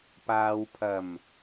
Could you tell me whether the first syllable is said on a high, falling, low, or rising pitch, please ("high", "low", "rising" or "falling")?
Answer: low